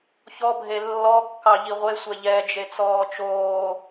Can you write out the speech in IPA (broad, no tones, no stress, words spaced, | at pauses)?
çɔbʱe lːɔkːɑ ʎiʁʷesʷɛ ʎɛd͡ʒe t͡sɔːt͡ʃoː